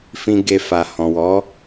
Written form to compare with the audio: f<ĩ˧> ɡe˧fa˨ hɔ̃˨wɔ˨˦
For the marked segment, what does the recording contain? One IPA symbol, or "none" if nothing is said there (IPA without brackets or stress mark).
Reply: ĩ˧